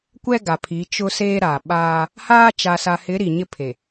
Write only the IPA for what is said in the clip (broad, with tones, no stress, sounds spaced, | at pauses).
kʷ ɛ˦ ɡ a˨ pʰ i˨˦ t͡ʃ ʊ˦ s eː˦ ɾ a˨ ɓ aː˦ | h aː˦ t͡ʃ a˨ s a˨ h ɪ˨˦ ɾ i˨ ɲ ɪ˦ pʰ e˨